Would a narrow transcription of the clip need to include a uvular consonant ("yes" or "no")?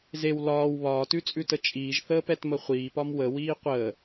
yes